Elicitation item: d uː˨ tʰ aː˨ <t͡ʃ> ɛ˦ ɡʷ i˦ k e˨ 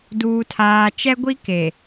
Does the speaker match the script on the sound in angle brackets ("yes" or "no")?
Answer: yes